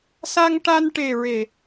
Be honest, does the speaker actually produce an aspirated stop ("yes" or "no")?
no